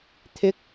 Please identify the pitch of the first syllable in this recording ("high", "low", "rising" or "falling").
rising